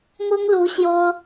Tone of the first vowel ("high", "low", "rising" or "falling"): high